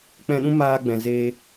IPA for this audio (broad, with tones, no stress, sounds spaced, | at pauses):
k͡p ɛ̃˧ ɗ ũ˦ m aː˧ ɡ͡b ɛ̃˨ z eː˧